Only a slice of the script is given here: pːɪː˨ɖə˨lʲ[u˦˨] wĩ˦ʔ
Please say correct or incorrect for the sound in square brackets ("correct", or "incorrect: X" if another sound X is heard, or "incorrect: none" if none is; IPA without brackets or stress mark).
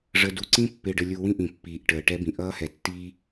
incorrect: u˨